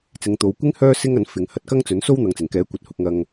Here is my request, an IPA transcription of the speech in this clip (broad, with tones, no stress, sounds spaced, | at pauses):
t͡s ɪ˨˧ ŋ t̪ o˨˧ w kʷ ɪ˥ ŋ h œː˥ s ɪ˥ ŋ ɐ˨˥ n f ɪ˨˧ ŋ h ɐ˧ t̚ k ɐ˥ ŋ t͡s ɵ˨˥ n s o˥ w n̪ ɐ˨ ŋ t͡s ɪ˨˩ ŋ k ɛː˨˥ kʷ ɐ˨ t̚ h ʊ˧ k̚ ŋ ɐ˧ ŋ